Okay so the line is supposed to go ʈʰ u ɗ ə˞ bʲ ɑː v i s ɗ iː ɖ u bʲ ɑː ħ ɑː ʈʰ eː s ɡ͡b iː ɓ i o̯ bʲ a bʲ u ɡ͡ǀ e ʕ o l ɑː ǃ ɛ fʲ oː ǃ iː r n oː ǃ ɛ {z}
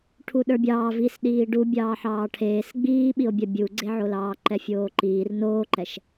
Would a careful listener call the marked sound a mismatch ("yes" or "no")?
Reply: yes